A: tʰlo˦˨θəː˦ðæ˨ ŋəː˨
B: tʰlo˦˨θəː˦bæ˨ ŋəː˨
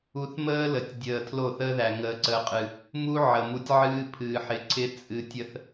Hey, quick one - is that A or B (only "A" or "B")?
A